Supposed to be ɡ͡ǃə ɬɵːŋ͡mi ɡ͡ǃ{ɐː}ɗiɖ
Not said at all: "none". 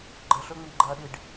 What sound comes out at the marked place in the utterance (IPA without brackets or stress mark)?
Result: ɐː